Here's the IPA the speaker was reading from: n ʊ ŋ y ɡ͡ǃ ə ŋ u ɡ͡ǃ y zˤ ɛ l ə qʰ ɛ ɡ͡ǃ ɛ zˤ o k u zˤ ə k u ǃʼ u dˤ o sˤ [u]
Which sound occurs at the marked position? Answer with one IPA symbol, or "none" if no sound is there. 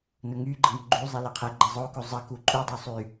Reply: y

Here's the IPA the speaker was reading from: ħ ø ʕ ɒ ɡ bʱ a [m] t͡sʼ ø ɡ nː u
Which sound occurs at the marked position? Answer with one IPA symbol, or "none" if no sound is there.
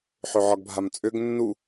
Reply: m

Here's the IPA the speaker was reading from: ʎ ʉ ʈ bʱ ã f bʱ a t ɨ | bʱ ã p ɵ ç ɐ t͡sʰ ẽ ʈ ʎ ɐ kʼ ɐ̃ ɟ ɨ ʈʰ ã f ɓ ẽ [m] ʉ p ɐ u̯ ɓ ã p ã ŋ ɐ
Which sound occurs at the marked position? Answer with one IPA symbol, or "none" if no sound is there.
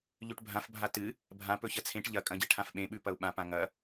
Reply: ɓ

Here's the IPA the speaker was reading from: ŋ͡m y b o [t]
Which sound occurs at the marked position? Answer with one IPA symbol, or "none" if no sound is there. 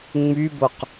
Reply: q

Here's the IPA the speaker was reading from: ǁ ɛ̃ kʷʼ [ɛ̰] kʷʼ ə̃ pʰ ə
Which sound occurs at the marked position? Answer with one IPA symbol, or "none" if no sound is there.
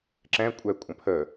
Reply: ɛ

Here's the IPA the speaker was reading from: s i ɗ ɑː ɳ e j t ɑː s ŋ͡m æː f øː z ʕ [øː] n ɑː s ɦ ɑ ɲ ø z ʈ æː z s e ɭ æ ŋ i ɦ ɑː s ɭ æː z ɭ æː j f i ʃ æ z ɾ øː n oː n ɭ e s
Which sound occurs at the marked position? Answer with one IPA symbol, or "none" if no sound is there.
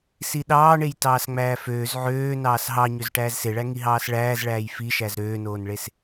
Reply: øː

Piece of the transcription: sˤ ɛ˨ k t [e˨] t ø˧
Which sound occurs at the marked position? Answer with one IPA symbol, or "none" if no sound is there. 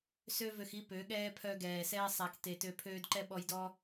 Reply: e˨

